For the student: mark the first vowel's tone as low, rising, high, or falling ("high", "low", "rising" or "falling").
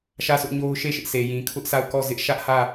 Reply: falling